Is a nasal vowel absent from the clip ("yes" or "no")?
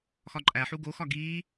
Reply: yes